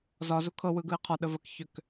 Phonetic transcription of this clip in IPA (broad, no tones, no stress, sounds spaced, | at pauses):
z ɒ z u kʰ ɤ w ɯ ɡ ɯ ɪ̯ qʰ ɒ ɗ ə v ə k ç ʏ k